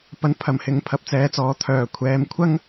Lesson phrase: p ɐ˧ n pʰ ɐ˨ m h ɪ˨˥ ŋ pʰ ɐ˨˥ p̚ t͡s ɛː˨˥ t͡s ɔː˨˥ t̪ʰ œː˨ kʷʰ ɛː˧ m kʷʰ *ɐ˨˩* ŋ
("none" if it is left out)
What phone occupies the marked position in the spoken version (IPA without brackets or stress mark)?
ɐ˥